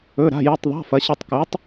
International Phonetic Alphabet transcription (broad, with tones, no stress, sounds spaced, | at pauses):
ɵ˧˥˧ ɾ a̤˧˥˧ j u˧˥˧ tˤ ðˤ a̤˧˥˧ f ɐ˨˥ ɕ ɨ˦˨ tˤ k ʉ˨˥ tˤ